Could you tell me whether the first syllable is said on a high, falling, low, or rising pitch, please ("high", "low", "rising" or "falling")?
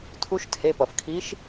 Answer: rising